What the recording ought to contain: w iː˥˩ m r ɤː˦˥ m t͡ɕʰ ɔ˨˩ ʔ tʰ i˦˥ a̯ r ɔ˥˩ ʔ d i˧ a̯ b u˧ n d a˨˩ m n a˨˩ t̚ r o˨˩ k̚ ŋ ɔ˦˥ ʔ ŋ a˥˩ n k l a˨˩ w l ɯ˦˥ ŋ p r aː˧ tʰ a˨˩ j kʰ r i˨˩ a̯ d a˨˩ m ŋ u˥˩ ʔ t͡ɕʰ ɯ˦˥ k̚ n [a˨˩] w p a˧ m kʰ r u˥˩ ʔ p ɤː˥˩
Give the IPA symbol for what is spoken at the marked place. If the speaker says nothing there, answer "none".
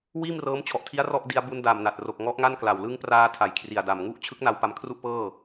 a˧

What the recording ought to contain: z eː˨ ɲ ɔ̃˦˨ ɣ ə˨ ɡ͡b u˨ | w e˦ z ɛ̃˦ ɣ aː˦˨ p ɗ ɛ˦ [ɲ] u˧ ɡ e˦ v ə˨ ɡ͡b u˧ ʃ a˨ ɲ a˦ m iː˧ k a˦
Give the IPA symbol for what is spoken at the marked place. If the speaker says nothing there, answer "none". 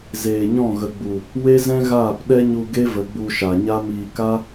ɲ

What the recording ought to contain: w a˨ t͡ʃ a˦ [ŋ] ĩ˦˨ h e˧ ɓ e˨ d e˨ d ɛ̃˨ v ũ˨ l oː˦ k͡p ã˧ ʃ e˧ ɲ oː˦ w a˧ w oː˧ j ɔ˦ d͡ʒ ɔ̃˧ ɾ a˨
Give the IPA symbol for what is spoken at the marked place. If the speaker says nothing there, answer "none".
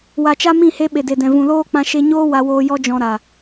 m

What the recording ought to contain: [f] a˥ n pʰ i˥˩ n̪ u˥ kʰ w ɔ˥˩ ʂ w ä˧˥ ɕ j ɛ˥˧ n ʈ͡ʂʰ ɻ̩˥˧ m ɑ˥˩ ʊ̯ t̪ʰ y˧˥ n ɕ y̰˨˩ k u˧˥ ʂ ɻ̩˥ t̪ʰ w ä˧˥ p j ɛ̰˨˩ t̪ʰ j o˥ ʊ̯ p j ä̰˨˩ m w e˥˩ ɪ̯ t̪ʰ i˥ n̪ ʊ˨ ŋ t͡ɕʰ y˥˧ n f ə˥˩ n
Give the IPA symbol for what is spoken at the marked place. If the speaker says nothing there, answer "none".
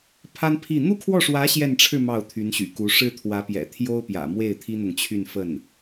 pʰ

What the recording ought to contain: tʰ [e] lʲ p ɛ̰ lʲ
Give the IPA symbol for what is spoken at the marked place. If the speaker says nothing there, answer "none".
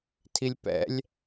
i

